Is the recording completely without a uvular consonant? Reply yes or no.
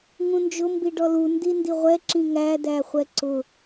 no